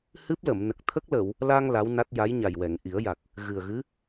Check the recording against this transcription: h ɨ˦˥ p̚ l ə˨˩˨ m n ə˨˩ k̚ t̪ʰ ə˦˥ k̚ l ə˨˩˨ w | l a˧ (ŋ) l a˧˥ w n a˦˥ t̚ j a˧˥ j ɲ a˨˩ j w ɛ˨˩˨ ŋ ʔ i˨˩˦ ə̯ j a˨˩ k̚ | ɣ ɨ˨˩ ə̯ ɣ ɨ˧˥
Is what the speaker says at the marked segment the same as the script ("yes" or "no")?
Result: yes